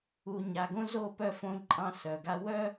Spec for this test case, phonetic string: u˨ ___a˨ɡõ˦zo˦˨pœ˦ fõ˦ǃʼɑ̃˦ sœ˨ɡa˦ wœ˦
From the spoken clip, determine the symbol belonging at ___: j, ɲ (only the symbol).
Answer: ɲ